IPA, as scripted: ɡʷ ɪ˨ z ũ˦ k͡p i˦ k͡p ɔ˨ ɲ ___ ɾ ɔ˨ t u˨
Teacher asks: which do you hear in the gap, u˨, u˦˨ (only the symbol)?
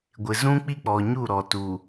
u˦˨